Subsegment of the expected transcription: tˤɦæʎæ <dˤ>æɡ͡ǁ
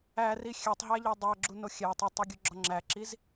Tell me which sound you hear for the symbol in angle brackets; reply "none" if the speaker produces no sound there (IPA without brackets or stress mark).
dˤ